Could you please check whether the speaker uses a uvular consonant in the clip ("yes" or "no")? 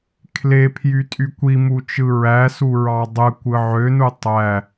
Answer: no